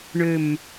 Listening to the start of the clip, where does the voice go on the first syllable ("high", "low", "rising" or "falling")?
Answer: low